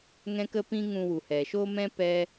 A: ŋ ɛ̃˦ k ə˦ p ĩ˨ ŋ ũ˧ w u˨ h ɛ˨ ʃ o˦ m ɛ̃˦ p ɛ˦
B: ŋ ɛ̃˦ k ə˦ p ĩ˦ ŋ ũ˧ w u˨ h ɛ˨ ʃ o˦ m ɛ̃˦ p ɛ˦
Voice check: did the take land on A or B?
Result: B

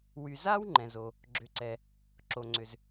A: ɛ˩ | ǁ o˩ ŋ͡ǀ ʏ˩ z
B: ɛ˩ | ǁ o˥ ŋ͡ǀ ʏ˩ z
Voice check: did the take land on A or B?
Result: A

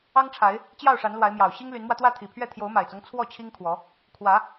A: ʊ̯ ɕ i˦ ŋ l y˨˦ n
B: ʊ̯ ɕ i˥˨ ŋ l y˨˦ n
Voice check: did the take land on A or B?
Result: A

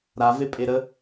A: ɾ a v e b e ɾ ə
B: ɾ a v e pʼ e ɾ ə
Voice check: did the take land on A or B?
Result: B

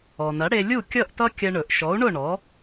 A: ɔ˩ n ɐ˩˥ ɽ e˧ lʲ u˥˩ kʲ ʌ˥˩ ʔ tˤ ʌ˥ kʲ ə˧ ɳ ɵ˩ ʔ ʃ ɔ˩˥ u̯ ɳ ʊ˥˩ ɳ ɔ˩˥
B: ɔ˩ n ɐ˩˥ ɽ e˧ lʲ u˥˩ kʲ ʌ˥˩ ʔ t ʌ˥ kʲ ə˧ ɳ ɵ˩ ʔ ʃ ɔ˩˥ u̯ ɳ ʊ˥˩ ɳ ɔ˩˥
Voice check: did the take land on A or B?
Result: B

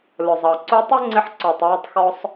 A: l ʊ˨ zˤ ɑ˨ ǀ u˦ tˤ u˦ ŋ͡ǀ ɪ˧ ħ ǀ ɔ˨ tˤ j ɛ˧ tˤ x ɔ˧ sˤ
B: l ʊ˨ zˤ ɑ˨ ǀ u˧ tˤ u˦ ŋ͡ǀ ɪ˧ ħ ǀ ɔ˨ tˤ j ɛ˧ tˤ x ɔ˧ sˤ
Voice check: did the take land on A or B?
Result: B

